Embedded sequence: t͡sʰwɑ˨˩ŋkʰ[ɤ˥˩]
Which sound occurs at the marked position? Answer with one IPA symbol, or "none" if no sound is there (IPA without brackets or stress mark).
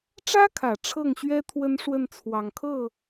ɤ˥˩